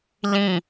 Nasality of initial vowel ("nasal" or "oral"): nasal